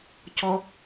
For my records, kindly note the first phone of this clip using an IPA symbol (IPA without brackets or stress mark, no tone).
c